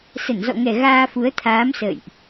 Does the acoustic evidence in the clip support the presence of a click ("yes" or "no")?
no